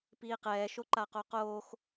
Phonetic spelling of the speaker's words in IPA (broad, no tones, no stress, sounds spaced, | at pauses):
p iː q ɛː ʃ o ǃ a q o q oː x